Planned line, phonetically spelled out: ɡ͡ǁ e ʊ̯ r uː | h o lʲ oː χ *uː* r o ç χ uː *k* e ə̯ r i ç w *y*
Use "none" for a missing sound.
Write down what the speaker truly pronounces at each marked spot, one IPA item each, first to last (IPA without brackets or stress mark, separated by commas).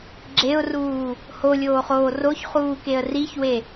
oː, k, e